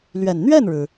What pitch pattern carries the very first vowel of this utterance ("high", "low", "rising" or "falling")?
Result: low